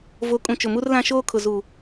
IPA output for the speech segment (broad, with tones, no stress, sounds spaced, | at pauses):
v o˨˦ kʼ ũ˨ t͡ʃ ʊ˨ m u˦ r l ã˦ ʃ oː˦ kʰ ʊ˨ z uː˨